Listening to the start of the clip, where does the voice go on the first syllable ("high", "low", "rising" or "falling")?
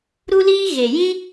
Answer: high